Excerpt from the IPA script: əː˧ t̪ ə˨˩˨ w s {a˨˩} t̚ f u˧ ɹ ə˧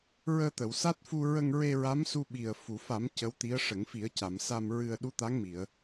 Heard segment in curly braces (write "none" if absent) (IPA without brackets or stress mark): a˦˥